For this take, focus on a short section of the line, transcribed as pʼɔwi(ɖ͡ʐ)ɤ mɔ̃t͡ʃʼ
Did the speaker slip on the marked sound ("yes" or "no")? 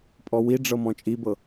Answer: no